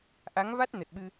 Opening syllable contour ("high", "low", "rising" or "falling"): rising